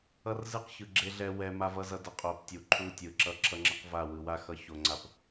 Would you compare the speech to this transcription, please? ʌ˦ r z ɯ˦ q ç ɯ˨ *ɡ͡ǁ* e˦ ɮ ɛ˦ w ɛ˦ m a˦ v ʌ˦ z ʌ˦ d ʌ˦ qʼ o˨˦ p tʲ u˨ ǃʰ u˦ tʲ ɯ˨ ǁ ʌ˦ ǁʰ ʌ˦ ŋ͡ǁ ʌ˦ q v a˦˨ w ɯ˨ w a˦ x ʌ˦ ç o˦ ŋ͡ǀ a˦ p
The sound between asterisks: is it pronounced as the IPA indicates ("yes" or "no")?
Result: yes